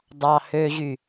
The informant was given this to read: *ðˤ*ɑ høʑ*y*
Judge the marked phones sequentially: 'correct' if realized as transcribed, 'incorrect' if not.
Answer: incorrect, correct

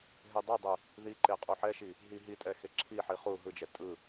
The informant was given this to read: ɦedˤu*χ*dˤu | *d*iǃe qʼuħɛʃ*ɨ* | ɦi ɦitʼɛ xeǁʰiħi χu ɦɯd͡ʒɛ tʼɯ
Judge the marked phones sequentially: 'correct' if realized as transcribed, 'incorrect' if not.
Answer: incorrect, incorrect, incorrect

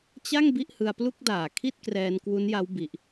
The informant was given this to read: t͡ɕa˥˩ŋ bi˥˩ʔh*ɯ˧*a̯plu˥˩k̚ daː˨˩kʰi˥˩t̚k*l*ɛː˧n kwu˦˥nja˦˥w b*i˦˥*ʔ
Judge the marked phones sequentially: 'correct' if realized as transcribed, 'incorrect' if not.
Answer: correct, incorrect, correct

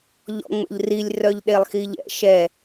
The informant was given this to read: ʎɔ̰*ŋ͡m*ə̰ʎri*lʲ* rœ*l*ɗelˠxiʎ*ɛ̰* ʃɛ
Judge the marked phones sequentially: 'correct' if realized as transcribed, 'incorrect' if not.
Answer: correct, correct, incorrect, correct

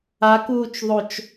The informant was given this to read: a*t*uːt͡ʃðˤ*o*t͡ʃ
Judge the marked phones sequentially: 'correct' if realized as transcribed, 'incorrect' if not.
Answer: incorrect, correct

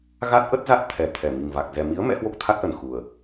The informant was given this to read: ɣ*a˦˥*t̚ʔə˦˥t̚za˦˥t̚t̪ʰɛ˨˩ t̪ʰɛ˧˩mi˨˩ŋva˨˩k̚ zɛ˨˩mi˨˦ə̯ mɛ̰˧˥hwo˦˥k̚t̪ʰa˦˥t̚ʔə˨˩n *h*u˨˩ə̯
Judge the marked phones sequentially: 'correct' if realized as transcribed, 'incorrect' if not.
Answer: correct, incorrect

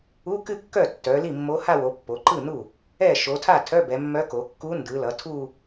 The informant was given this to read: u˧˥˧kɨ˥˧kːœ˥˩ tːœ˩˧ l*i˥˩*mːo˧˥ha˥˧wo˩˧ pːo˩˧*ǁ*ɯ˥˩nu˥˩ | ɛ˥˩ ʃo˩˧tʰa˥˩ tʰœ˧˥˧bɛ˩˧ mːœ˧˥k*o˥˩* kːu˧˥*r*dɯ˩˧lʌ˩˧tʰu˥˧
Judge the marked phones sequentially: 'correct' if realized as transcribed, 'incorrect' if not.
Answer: correct, incorrect, incorrect, incorrect

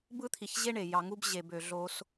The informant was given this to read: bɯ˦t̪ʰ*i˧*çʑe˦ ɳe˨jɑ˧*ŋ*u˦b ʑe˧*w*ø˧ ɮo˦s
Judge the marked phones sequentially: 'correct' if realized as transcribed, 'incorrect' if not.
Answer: correct, correct, incorrect

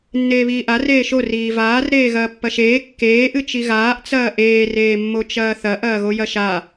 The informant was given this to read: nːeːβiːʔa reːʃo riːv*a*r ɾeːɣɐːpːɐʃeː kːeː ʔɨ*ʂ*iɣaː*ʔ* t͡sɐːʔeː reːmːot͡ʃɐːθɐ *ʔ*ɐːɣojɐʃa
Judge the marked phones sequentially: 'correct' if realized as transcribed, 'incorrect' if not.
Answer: incorrect, incorrect, correct, correct

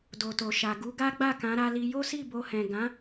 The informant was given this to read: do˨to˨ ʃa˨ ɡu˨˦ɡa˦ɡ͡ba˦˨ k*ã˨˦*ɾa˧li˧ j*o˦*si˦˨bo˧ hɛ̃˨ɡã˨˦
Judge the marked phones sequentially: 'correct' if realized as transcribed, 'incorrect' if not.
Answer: correct, correct

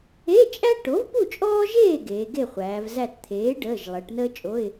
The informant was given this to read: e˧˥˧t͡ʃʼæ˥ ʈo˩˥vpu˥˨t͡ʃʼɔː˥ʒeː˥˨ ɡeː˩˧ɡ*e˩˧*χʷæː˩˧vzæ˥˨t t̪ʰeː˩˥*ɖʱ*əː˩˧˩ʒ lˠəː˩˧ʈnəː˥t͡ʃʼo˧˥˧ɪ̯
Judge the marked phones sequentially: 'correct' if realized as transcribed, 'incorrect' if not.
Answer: incorrect, incorrect

